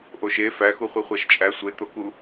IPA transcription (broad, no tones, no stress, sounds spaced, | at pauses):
ʔ o ʃ e f æ x u χʷ i χʷ æ ʃ t͡ʃʼ æ sʷ e t̪ o k u